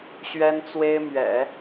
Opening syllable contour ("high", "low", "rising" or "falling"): high